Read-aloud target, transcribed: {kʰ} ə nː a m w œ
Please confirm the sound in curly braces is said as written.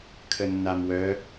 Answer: yes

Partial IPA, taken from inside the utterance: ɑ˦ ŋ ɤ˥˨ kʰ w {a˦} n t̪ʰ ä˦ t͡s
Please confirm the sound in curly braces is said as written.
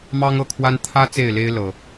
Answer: yes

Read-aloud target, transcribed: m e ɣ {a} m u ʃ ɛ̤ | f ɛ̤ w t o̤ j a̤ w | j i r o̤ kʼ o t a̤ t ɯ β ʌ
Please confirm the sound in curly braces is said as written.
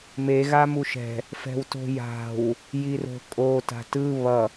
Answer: yes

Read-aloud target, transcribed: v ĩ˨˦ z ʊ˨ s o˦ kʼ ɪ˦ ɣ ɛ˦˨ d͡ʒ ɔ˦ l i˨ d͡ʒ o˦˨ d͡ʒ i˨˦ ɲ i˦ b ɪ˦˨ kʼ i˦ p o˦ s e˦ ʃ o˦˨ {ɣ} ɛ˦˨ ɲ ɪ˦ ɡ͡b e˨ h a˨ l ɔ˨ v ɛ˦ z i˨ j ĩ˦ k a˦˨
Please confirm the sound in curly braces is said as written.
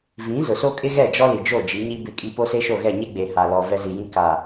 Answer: yes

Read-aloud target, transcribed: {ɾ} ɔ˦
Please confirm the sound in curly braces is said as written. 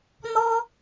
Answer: no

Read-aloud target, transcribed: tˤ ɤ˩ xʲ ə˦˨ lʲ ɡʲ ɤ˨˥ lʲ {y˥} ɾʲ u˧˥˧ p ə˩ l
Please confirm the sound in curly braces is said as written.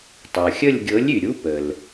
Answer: no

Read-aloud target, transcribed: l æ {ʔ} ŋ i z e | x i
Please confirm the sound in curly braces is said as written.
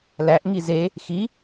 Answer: yes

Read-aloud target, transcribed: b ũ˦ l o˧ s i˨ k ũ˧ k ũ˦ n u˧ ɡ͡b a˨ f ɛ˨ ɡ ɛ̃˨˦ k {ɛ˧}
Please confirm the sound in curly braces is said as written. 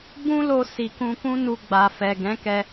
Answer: yes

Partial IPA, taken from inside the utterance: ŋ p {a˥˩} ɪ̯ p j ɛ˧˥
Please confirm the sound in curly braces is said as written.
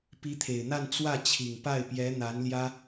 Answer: yes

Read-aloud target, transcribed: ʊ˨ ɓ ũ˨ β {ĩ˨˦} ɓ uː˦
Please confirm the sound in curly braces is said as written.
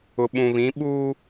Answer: yes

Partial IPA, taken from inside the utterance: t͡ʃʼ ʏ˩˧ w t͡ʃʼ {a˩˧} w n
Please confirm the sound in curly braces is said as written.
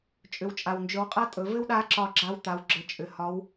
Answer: no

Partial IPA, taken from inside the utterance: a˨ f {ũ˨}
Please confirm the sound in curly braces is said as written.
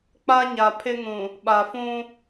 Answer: no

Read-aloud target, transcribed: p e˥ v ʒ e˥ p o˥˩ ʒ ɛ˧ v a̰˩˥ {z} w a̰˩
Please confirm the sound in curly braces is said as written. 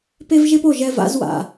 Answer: yes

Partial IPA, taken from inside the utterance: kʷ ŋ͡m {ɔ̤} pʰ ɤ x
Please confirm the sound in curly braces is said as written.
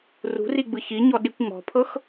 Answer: yes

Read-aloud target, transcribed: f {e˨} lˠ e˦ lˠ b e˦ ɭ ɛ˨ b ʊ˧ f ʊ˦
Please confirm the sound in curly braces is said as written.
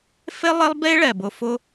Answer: no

